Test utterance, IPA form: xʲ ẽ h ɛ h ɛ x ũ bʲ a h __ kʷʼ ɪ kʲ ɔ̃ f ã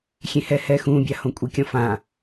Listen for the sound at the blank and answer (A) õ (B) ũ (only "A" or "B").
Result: A